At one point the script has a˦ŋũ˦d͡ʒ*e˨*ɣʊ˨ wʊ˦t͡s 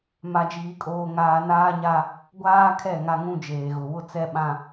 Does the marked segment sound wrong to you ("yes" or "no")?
yes